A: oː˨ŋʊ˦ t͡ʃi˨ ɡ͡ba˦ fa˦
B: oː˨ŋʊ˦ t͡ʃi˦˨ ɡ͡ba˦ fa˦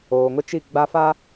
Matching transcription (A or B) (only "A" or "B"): B